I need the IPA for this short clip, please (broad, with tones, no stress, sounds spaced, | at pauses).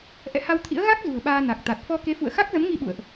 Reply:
ʔ ɛ̰˧˨ h a˧ w t̪ʰ ḭ˧˥ ə̯ ɣ a˦˥ k̚ z ṳ˨˩ ə̯ ɓ aː˧ n a˨˩ k̚ t̪ a˨˩ t̚ f ɔ˧ k e˨˦ f ṵ˧˨ ə̯ x a˦˥ k̚ z ə˨˦ m ŋ i˧ ɓ ṵ˧˨ ə̯ ʔ